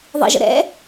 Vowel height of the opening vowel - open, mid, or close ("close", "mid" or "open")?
close